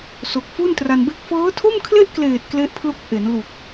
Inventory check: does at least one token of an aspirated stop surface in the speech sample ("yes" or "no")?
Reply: yes